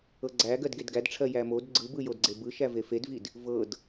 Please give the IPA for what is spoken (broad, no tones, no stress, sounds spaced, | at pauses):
ɤ ɡ͡ǀ æ ɡ ɜ d ɡ e d ɡ æ d ʈ͡ʂʰ ɜ j æ m o d ɡ͡ǀ ɯ b ɯ j o d ɡ͡ǀ e b ɯ ʃ æ v e f e d v i d | v ɤ d